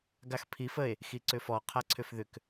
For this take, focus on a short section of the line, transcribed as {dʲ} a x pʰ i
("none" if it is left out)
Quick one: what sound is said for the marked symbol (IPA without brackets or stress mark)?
ɡ